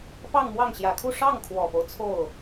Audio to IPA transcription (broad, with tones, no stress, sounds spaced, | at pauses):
p ɑ˥˧ ŋ m w ɑ˥˩ ŋ ɕ j ä˨˩ kʰ u˥˧ ʂ ɑ˥˩ ŋ kʰ w ɔ˨˩ p o˦ ʊ̯ t͡sʰ o˥˩ ʊ̯